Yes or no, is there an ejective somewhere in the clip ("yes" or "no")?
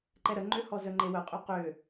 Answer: yes